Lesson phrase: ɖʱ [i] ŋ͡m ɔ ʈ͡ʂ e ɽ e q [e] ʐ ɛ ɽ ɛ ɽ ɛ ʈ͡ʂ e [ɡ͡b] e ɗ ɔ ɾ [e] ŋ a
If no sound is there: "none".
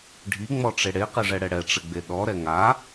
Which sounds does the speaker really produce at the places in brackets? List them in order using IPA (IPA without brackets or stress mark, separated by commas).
i, e, ɡ͡b, ɛ